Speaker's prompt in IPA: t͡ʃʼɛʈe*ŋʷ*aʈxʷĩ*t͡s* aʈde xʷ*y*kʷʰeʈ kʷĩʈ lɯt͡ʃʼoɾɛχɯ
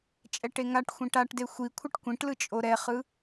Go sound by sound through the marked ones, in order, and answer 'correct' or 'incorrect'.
incorrect, incorrect, incorrect

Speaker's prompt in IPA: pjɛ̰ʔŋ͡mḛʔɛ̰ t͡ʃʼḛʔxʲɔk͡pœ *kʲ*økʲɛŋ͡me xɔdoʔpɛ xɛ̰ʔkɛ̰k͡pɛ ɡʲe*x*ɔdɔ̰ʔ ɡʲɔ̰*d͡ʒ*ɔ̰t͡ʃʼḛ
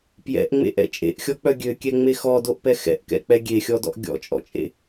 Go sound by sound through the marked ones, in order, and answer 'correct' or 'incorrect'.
incorrect, incorrect, incorrect

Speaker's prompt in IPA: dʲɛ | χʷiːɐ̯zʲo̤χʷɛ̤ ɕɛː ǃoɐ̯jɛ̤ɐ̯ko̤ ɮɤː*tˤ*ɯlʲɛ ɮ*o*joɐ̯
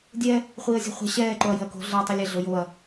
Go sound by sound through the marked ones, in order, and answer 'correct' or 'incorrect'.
correct, correct

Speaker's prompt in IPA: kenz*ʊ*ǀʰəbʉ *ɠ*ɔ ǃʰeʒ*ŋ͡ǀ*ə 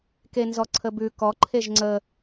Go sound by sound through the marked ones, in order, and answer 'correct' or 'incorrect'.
incorrect, incorrect, correct

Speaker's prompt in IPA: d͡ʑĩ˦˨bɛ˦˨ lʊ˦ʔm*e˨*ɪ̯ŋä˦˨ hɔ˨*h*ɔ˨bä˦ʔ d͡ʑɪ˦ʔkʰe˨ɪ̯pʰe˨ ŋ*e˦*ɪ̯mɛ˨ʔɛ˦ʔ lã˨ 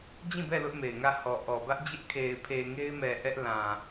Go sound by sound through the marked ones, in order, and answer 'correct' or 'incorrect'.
correct, incorrect, correct

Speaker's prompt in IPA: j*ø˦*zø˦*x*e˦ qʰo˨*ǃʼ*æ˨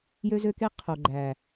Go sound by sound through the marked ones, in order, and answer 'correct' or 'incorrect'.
correct, incorrect, incorrect

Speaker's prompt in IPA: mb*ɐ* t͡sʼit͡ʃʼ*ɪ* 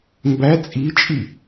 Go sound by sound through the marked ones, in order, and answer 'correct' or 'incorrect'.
incorrect, incorrect

